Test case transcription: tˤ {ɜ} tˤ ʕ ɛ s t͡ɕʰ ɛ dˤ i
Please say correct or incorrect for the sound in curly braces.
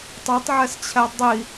incorrect